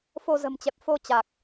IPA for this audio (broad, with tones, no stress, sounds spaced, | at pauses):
f o˧ z ə̤˨˩ m t͡ɕ ɛ˨˩ p̚ f o˧ t͡ɕ a˨˩ k̚